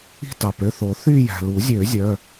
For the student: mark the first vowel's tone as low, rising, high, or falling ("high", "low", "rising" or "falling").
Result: falling